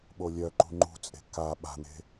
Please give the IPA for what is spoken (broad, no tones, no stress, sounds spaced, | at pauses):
ɓ o lʲ œ ǃ ṳ ŋ͡ǃ ṳ t͡sʼ e̤ k a ɓ a̤ n̪ e̤